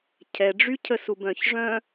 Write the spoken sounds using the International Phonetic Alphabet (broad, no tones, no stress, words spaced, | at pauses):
cʰɛɖ͡ʐycʰəsub œ̃çʐœ̃